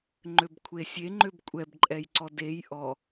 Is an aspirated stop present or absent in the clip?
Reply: present